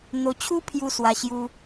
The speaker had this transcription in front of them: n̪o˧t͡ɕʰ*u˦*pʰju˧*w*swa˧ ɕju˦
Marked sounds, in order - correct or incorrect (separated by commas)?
correct, incorrect